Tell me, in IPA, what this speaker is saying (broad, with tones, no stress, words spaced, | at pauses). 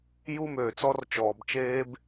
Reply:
ju˦møː˨t͡sɔ˦r t͡ʃɔː˨bt͡ʃeː˦b